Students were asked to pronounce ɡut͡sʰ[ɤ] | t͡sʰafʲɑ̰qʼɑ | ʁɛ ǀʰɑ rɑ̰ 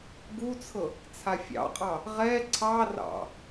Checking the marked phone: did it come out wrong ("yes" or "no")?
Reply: no